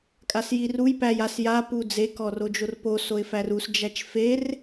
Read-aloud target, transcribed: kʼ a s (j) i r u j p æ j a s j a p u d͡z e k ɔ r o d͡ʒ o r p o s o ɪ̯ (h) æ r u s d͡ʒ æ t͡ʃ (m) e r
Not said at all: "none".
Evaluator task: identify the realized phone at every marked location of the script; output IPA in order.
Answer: j, f, f

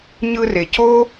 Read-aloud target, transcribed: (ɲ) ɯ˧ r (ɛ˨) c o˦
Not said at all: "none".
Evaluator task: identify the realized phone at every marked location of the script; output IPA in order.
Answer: ɲ, e˨

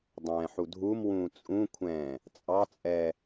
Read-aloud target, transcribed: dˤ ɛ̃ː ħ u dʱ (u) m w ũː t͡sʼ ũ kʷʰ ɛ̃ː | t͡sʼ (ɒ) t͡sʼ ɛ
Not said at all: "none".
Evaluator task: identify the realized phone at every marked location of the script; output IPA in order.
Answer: u, ɑ

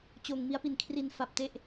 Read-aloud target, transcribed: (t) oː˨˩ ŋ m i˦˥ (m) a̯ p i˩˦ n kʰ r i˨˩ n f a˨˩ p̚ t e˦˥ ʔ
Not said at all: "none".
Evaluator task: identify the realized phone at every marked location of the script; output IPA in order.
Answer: t͡ɕ, none

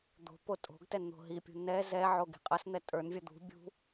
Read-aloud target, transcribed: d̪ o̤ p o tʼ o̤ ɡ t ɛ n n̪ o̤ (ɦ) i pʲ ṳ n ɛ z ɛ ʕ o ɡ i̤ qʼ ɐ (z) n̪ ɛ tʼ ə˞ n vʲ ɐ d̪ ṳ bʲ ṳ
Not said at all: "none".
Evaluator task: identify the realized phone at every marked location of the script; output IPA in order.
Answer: ɦ, s

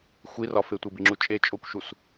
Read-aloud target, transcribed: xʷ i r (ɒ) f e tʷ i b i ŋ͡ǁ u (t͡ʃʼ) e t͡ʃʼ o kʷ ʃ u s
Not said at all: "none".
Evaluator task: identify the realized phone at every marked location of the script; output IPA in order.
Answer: ɒ, t͡ʃʼ

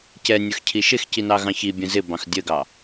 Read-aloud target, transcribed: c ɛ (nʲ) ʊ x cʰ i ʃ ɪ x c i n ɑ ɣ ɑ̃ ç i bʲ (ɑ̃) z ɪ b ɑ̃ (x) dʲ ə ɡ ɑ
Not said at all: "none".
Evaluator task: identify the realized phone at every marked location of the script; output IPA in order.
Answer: nʲ, ə̃, x

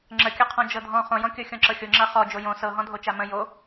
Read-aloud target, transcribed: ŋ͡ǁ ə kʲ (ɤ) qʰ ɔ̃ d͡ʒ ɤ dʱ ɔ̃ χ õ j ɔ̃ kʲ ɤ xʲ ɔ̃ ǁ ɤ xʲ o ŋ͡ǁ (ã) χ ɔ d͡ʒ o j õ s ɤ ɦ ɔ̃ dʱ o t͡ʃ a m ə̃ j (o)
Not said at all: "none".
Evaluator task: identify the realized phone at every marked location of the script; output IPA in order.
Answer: ɤ, a, o

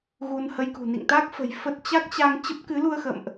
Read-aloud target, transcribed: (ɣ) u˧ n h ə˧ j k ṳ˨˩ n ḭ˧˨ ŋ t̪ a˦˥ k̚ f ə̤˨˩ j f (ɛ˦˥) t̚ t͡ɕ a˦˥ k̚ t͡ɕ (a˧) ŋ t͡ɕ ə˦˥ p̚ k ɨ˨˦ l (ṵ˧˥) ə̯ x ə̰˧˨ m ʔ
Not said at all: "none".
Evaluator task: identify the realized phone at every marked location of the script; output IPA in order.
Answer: ɣ, ə˦˥, a˧, u˧

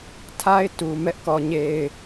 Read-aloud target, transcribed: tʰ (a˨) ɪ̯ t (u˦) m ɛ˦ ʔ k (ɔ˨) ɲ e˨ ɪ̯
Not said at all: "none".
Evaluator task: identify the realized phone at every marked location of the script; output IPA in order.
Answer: a˦, u˨, ɔ˨

